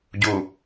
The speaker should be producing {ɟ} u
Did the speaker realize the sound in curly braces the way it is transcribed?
yes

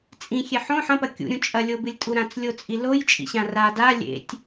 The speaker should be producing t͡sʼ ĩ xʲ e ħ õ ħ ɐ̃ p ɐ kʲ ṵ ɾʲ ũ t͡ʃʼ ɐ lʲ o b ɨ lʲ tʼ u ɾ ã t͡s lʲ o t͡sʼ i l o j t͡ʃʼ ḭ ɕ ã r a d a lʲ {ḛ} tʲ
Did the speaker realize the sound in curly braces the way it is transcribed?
yes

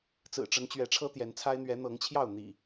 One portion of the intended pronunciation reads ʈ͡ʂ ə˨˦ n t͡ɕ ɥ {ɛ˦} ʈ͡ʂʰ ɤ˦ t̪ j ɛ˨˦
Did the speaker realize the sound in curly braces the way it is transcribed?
no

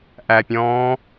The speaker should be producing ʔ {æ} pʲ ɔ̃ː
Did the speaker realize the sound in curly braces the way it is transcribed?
yes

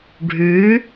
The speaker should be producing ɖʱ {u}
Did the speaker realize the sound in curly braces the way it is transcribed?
no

